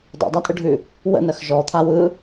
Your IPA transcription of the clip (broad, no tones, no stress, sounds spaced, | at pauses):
dˤ ṵ dˤ a tʼ ɯ ɖʱ ʉ | w ə̰ n ɜ x ʒ ɔ t̪ʰ a w ɯ